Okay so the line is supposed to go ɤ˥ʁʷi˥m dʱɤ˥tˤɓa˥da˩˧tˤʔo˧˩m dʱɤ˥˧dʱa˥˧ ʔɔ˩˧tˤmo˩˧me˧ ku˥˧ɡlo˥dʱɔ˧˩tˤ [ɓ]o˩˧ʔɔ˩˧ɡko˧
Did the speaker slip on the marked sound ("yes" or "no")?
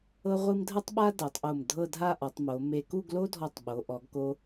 no